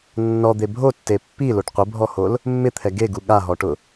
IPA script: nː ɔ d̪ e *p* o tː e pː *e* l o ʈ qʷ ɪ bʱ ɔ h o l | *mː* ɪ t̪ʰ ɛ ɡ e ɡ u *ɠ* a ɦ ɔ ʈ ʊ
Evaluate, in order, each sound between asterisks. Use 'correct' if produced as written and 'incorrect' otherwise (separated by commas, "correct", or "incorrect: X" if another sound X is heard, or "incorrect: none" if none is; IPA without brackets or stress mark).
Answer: incorrect: bʱ, incorrect: i, correct, correct